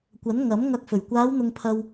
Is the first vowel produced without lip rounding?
yes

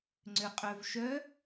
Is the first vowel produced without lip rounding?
no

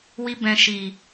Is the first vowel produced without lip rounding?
yes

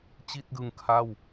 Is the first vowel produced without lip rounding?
yes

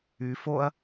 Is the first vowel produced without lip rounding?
no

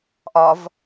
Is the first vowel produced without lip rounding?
no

